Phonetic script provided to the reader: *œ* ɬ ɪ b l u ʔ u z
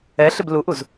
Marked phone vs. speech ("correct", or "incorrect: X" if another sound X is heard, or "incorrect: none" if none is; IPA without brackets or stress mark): incorrect: ɛ